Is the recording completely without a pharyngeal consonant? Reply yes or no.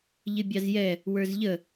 yes